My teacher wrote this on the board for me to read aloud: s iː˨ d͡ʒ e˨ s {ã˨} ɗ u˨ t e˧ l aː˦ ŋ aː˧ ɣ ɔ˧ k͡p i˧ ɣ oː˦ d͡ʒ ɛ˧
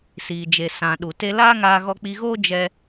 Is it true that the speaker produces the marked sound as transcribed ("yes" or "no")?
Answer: yes